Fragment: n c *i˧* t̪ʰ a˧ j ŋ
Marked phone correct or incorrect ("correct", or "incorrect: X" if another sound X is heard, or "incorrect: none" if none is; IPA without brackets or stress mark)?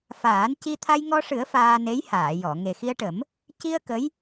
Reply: correct